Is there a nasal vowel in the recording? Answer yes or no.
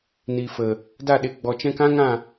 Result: yes